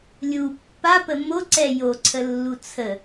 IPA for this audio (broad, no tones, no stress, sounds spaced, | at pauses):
lʲ u pː a p ə m o ǀ ɛ j o ǀʰ ə lː u t͡sʰ ə